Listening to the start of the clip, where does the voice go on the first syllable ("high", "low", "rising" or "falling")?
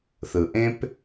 low